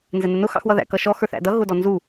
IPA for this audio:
n z ɛ n ʊ n ʊ x ɑ̰ x w ʌ ð æ̰ k ʌ ʃ ɔ x ə˞ θ æ̰ d ʌ ɣ ʊ d ɔ n z u

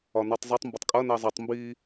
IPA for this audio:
ɒ n ɔ tˤ zˤ e tˤ m b ɐ tˤ kʼ ɐ n ɛ zˤ i tˤ m b iː

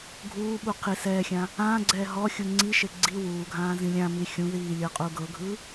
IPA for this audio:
ɡʱ uː ɓ u qʰ i s ɛː xʲ ã | ãː ɡ͡ǀ ɛː ɦ ɔ xʲ u ŋ͡ǀ i ʃ e ɡ͡ǀ i w uː ɡʱ ãː z ĩ lʲ ã m i xʲ ũ ð iː lʲ ɤ qʼ u ɡ ɤ ɡʱ ɯ

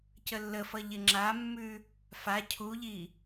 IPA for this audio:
c ə lː ə f ʌ ʎ ɪ ŋ͡ǁ a mː ʉ | f a cʰ u ʎ i

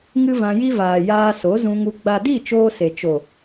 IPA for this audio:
ŋ ɨ˦ v ã˧ j i˦ v aː˨ j aː˧ s o˨˦ z ũ˧ ŋ u˧ ɡ͡b a˨ d i˦˨ t͡ʃ oː˦ s e˨ t͡ʃ o˨

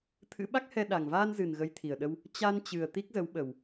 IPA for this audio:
t̪ʰ ɨ̰˧˥ ɓ a˦˥ k̚ h ɛ˧ ɗ a˨˩ ŋ v aː˧ n z ɨ˨˩ n ɣ ə˨˦ j t̪ʰ i˨˩ ə̯ ɗ ə˧ w | t͡ɕ a˧ n t͡ɕ ɨ˨˩ ə̯ t̪ i˦˥ k̚ z ə˨˦ w ɓ ə˨˩ w

